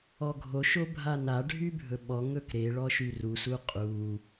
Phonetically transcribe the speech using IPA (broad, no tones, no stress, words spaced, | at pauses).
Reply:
ɔɡʱo ʃobʱana ɖʱybʱɵɓɔ ŋɵkɾe ɭɔʃyrus uqʼu